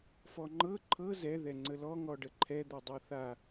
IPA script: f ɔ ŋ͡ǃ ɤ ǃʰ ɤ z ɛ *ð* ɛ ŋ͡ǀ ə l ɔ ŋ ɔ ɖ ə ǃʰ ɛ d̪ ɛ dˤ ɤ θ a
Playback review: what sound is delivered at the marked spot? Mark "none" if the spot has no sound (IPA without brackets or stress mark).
ð